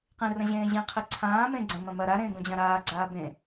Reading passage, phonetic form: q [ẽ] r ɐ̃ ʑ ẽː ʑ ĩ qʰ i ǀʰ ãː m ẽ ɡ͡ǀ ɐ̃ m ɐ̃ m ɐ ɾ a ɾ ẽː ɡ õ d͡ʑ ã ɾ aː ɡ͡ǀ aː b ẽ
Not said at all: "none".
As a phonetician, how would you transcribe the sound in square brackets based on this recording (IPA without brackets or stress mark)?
ĩ